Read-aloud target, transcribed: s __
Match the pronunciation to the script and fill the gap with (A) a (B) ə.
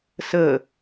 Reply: B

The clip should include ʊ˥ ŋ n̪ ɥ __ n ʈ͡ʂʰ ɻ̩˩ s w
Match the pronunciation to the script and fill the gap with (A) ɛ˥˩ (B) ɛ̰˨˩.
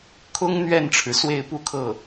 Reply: A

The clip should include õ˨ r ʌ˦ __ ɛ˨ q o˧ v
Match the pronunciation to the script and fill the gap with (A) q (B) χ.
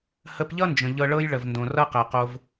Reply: A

